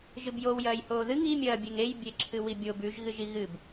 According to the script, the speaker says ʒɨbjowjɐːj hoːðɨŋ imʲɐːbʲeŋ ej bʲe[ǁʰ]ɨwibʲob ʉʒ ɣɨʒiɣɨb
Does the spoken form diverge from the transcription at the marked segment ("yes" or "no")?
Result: no